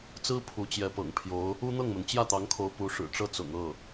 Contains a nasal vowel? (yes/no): no